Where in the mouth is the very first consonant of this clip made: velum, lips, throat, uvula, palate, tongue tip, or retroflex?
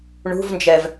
retroflex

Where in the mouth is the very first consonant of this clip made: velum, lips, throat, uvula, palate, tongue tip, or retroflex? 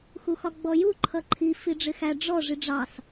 velum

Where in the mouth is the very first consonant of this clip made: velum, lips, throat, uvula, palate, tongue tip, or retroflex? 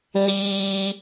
tongue tip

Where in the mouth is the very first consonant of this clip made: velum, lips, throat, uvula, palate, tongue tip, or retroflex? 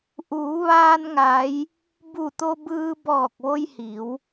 throat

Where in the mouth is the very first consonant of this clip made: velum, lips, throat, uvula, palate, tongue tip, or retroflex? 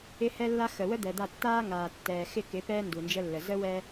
throat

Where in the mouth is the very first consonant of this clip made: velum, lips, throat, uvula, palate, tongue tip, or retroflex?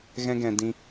velum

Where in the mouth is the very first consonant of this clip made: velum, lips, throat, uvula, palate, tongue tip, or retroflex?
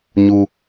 palate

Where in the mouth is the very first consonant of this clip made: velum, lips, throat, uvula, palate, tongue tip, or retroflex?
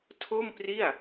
tongue tip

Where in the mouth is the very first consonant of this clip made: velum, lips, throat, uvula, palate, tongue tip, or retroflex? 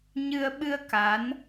palate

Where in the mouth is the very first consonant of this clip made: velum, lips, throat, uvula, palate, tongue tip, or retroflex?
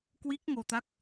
velum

